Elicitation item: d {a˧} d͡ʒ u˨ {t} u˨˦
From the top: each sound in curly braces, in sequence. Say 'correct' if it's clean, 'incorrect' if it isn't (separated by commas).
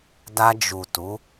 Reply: correct, correct